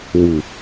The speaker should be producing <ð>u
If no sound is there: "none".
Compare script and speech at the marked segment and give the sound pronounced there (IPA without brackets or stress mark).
w